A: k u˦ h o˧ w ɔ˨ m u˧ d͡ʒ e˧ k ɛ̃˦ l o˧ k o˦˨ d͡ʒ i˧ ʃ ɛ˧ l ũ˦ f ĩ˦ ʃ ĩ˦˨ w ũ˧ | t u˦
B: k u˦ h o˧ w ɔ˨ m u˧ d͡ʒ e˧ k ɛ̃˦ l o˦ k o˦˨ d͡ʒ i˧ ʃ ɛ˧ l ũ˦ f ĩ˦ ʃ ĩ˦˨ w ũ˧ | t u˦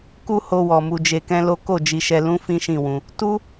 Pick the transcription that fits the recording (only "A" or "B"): B